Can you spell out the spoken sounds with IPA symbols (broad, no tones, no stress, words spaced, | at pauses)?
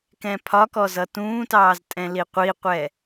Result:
kɛ̃pʰɒkɔz ʌtũːtɑːz tʼɛ̃liqʷiqʷɛ